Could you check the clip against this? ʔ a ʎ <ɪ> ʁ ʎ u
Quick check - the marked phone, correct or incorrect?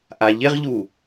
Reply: correct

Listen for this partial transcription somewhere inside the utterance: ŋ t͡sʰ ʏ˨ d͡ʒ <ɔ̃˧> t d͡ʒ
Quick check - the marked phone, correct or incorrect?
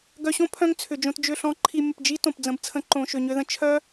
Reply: incorrect: õ˧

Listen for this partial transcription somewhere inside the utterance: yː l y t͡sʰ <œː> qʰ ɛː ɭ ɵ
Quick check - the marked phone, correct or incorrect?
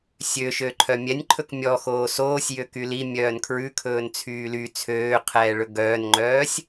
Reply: incorrect: øː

